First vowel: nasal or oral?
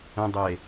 nasal